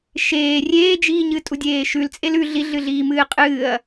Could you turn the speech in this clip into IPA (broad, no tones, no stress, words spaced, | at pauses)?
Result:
ʃeː rʲeːd͡ʒiːɲɨ tʼudʲeːʃʉlt͡sʼel ʉ ɮiɮɨɮiː mɨːqʼɨːɐ̯